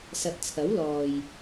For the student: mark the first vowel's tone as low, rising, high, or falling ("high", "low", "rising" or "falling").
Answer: low